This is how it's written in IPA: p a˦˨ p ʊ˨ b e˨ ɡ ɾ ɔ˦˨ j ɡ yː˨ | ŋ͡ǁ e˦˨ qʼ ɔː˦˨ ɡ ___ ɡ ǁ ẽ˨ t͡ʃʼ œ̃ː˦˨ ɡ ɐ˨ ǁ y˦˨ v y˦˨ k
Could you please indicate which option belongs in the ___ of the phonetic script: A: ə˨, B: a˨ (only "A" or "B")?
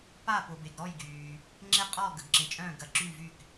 A